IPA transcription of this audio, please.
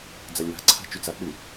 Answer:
d͡z a lʲ w a̤ ǀʰ a̤ t͡ʃ y t͡s a k͡p y

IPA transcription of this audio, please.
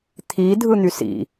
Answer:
t̪ʰ i dʱ ɯ n̪ y s ḭ

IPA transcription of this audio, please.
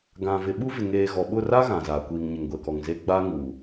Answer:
ɡ ã˨ v ɪ˨ ɓ u˦ v ɪ˨ ŋ eː˨ ɣ ɔ˨ ɓ ʊ˦˨ r a˦ ɣ ã˨ z aː˨ kʷ iː˨ ŋ ɲ ɪ˨ ŋ ɡʷ ɛ˨ k ɔ˨ ŋ z e˦ ɡ͡b a˦ ŋ uː˨

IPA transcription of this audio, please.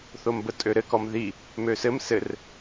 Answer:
θ o m b ə tʼ ø ɾ ɘ k ɔ m ð i | m ø s ɘ m s ɘ r

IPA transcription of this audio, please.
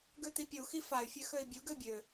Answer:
ɡ ø t̪ i pʲ u x i f a y̯ fʲ ø x ø i̯ bʲ u ɡ ø bʲ ø

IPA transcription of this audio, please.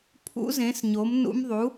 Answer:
pʰ ṵ˧˥ z ẽ˩˥ s ɲ o˩˥ m n ṵ˧˥ m ðˤ u˩˥

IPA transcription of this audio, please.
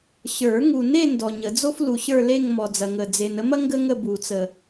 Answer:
ɕ ə˞˨˩˦ ŋ u˨ n e˥˧ n d ɔ˨ ɲ ə˨˩˦ d͡z o˥ f l u˨ ɕ ə˞˥˧ l e˥˧ ŋ m ɔ˨ d͡z ɐ˨ ŋ ə˨ d͡z e˨ n ə˥ m ɐ˥ ŋ ɡ ə˥ ŋ ə˥˧ b u˨˩˦ t͡s ə˨

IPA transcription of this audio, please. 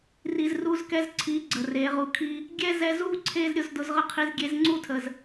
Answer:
r i˨ z r u˧ z k ɛ˧ z ǀʰ i˨˦ ɡ͡ǀ ə˨ r e˨˦ ʁ u˧ kʰ i˦ | ɡʲ ɛ˦ z ɛ˧ z u˦ ǀʰ e˦ z ɾʲ ʊ˧ z d ʊ˧ z ʁ ə˦ qʰ i˧ z ɡʲ e˧ z ŋ͡ǀ u˦˨ tʰ ə˨ z

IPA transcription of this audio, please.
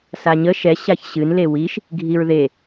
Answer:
s a ɲ ə ʃ ɛ ɕ a ç ɕ ɨ n l e w i ʃ | ɡʱ i ɹ ð e

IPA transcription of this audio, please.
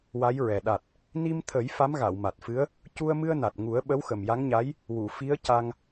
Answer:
w a˧˥ j ɹ ɛ˨˩ ɗ a˨˩ t̚ | n i˧ m t̪ʰ ə˨˩˦ j f a˧˥ m ɣ a˨˩˨ w m a˨˩ t̚ f ɨ˧˥ ə̯ | c u˧ ə̯ m ɨ˧ ə̯ n a˨˩ t̚ ŋ u˨˩˦ ə̯ ɓ ə˧˥ w x ə˨˩ m j a˧˥ ŋ ɲ a˧˥ j | w u˨˩˨ f i˧˥ ə̯ c a˧ ŋ

